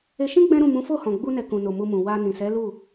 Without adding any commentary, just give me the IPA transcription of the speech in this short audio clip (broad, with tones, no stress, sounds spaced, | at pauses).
e˧ ʃ ĩ˦ ɡ͡b ɛ̃˦ ɾ ũ˦˨ m ũ˨˦ f o˦˨ h ɔ̃˨ ɡ͡b u˧ n ɛ˨ k ũ˨ n o˨ m u˧ m ũ˨ w a˧ n ĩ˨ s ɛ˨˦ l u˦˨